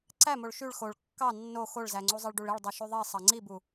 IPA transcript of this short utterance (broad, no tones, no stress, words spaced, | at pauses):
ǀæmoɭ ʃyɭ xoɭ kːɑ nːo xoɭzæŋ͡ǀu zˤeɭɖuɭiɭ dˤyʃyðˤi sˤɑŋ͡ǀibu